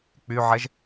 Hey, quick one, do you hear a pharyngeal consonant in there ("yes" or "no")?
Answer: yes